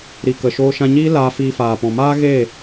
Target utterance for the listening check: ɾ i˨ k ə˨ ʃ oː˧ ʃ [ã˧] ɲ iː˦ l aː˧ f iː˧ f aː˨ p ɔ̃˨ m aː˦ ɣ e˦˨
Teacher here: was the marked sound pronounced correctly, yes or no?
yes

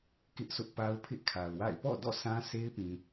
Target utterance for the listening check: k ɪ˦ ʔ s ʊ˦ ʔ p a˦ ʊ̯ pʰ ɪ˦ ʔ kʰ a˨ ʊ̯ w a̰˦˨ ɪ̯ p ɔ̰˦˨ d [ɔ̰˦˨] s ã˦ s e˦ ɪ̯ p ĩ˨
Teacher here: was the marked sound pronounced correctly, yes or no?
yes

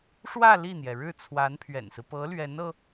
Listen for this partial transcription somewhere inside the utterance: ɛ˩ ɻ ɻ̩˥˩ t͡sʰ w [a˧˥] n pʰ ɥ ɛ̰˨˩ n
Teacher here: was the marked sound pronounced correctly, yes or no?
yes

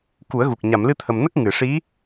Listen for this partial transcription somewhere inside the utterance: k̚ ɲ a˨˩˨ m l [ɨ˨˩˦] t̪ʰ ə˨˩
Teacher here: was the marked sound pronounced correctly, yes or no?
no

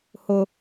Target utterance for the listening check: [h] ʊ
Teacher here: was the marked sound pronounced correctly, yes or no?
yes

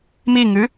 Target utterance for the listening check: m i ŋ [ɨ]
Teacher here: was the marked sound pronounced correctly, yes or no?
yes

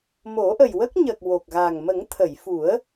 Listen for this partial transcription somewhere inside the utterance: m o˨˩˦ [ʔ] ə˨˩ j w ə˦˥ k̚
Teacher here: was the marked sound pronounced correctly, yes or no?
yes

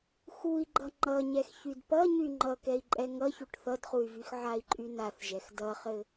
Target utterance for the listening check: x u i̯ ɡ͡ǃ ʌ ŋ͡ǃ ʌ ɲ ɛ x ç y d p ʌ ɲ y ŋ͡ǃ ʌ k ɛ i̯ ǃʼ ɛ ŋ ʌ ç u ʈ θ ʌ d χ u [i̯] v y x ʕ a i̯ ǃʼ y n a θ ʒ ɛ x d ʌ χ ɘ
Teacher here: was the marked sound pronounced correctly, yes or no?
no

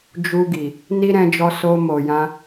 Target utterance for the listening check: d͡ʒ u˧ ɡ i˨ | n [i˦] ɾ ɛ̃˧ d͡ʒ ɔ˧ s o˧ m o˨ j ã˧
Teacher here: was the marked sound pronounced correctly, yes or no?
yes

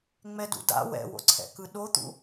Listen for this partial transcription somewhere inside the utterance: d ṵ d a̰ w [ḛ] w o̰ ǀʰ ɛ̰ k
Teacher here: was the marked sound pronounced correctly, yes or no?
no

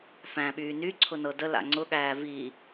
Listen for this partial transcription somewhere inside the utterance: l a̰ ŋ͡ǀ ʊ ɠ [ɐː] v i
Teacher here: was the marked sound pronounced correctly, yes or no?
no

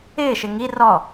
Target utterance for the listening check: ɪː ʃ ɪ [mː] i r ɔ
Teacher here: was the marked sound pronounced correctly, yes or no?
no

